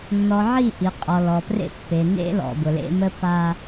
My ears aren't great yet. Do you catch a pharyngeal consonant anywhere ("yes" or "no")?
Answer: yes